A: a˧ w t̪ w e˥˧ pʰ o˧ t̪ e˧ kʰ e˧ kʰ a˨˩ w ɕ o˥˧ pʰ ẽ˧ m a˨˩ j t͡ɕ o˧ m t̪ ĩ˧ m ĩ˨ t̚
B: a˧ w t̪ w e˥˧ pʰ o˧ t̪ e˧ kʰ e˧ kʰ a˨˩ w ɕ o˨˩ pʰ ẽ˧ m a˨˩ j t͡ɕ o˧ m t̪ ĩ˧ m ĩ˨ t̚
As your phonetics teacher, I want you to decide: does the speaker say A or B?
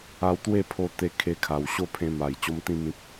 A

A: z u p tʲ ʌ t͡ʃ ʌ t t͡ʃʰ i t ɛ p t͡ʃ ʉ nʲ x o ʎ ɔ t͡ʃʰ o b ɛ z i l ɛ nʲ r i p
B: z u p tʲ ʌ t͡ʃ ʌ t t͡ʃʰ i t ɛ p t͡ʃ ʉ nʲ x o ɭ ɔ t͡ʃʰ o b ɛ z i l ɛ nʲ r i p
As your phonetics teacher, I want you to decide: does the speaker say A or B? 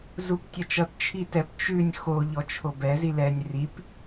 A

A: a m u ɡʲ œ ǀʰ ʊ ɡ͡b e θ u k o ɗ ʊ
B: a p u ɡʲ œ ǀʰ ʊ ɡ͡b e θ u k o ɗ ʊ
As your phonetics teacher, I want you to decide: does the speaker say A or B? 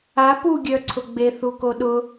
B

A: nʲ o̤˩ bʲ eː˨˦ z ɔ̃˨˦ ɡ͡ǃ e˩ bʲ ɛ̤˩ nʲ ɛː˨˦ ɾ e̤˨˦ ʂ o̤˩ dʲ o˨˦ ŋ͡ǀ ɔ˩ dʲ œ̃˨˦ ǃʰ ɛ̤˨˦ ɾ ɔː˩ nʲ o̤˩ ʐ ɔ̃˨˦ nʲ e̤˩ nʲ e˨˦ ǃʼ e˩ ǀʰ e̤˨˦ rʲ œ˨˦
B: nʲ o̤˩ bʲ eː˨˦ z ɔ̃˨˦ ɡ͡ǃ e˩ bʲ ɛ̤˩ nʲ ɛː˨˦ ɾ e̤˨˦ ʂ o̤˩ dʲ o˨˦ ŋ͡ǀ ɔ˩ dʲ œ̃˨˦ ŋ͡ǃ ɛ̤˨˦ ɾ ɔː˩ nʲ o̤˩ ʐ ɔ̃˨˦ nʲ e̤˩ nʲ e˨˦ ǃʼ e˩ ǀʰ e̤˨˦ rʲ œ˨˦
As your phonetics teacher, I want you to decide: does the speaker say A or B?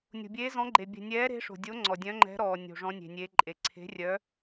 B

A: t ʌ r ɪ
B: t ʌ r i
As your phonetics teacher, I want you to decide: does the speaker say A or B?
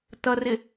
A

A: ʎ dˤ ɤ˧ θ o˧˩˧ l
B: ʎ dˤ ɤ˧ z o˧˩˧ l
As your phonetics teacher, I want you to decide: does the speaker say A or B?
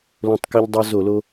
B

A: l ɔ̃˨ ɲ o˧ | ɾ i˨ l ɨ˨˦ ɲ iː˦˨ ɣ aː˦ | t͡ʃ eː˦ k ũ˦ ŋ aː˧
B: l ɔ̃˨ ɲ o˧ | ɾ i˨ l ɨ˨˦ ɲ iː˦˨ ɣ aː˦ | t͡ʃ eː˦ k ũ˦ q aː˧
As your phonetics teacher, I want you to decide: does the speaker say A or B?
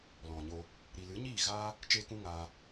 A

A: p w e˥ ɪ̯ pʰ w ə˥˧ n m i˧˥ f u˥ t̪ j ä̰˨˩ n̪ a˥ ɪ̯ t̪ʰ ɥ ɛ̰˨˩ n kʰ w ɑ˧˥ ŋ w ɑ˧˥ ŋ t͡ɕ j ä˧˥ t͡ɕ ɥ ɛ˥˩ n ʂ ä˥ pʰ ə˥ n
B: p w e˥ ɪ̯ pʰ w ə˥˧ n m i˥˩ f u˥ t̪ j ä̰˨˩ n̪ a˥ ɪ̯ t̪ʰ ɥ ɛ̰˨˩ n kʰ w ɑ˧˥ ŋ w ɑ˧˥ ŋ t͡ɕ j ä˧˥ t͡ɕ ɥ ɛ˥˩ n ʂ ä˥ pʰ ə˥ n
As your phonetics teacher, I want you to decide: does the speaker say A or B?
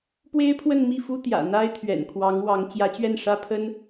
B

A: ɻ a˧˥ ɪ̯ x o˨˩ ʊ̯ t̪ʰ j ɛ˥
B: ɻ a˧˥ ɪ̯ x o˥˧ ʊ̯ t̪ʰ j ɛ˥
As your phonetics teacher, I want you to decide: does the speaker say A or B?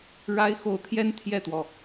A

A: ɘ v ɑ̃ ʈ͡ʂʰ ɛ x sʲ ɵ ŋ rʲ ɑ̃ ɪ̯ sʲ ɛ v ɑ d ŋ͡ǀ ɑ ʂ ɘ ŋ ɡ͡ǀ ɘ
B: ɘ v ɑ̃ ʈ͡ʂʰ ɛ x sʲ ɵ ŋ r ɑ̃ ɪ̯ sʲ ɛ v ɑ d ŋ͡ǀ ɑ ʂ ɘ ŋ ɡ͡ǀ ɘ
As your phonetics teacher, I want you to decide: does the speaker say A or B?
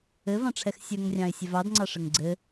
A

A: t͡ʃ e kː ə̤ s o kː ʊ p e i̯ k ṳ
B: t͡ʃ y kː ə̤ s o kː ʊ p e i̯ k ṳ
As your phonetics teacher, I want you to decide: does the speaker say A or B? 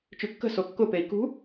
B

